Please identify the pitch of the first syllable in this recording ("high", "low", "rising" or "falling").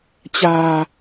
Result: low